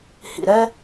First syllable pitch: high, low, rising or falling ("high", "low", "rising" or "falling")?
low